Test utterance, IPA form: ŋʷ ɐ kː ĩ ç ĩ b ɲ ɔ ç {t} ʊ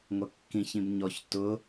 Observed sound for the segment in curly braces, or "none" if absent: t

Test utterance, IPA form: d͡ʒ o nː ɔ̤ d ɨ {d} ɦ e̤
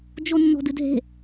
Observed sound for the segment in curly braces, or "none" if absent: d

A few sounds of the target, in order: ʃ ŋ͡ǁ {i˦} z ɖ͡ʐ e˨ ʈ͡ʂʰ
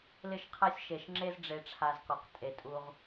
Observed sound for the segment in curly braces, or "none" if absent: e˦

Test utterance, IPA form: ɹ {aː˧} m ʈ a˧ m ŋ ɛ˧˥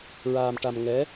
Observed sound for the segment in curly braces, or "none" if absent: aː˧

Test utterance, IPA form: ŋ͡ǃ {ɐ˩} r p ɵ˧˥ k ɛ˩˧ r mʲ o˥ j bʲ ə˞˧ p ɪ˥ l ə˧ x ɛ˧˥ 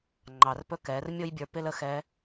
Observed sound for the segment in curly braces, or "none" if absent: ɑ˩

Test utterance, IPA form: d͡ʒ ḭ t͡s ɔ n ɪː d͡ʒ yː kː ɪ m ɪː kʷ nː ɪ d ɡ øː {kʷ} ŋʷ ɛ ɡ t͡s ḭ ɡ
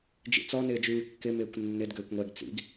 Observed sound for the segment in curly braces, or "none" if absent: kʷ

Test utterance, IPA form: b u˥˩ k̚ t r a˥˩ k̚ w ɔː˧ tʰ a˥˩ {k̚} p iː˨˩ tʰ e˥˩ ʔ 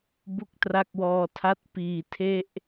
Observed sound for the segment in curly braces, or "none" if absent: t̚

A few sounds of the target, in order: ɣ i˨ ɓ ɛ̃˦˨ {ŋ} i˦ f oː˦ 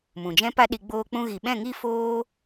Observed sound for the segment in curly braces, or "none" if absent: ŋ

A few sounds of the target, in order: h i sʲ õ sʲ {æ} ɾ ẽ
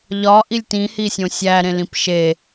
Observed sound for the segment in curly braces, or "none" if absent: æ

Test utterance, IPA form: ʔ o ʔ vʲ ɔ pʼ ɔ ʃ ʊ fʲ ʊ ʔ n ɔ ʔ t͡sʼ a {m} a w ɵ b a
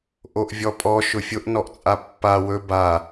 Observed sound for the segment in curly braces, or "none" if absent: pː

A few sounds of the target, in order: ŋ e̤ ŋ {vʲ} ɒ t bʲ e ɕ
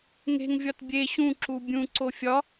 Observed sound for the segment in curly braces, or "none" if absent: vʲ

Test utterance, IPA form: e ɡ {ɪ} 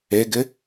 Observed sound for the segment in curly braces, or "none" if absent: ɪ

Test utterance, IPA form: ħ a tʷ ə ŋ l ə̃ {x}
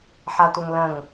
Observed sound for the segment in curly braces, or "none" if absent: ŋ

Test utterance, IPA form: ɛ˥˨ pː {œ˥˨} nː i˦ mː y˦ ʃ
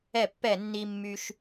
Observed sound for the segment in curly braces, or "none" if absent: ɛ˥˨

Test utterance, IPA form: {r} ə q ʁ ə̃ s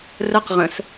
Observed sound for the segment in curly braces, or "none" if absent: r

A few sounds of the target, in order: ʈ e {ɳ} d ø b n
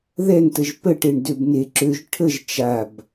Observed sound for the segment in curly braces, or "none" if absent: ɳ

